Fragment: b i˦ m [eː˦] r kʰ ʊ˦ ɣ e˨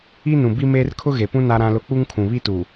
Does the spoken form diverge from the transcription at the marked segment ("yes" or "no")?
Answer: no